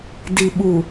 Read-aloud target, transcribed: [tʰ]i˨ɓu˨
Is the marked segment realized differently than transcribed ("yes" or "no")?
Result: yes